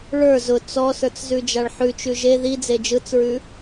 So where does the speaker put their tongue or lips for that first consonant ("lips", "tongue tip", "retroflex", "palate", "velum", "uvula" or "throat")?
retroflex